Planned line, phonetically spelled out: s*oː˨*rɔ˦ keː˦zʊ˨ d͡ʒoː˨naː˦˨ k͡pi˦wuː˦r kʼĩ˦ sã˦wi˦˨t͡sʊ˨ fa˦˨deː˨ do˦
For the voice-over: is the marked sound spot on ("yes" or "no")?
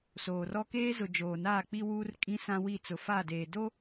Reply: yes